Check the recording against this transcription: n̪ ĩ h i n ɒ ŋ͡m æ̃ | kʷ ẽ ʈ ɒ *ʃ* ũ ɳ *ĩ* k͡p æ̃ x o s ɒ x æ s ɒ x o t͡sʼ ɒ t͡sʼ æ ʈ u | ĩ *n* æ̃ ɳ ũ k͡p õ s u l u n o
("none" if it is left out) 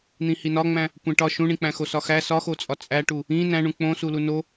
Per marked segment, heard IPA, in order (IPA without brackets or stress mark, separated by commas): ʃ, ĩ, n